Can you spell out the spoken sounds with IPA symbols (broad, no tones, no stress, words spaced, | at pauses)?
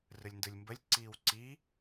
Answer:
rɯlʲndɯlʲmbəlʲ ǀiːwǀi